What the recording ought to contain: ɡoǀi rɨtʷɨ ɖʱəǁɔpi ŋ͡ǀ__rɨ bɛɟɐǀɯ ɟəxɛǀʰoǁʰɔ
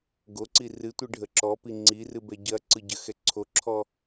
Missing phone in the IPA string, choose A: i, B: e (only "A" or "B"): A